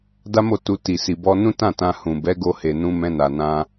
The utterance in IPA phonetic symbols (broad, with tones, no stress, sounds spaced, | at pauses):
d a˦ m o˦˨ t u˧ t i˨ s i˨ b ɔ˧ n ũ˦ t ã˦˨ t ã˧ h ũ˨ b ɛ˨˦ ɡ o˧ h e˨ n ũ˧ m ɛ̃˧ n a˨ n ã˧